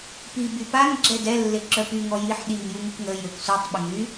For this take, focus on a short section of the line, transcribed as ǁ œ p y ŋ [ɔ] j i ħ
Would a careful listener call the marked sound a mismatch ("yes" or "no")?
no